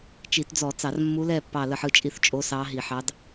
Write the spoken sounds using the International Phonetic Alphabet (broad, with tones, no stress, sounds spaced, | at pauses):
t͡ʃ i˧˩˧ t d͡z ɔ˧˩˧ t͡s ɑ˧˩˧ r mː u˧˥ l ɛ˥˨ pː ɑ˥˨ l ə˥˨ ħ ɯ˥˨ t͡ʃʼ i˥˨ θ t͡ʃʼ o˧˥ s ɑ˧˥ ɦ i˧˩˧ ħ ɑ˧˥ d